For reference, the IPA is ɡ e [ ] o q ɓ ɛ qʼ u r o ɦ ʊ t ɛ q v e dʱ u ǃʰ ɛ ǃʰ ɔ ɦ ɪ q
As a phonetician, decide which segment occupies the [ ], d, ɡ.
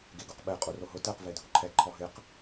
ɡ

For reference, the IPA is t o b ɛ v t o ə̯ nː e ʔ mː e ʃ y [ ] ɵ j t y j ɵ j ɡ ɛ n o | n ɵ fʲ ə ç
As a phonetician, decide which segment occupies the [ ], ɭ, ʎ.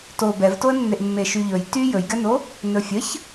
ʎ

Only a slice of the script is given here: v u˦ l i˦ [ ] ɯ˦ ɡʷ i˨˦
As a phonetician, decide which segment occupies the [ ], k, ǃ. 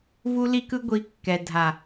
k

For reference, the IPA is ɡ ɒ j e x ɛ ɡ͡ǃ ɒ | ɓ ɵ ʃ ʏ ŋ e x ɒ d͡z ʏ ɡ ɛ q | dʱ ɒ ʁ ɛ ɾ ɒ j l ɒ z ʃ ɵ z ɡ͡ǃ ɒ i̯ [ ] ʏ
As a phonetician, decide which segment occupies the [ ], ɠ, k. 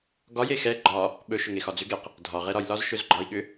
ɠ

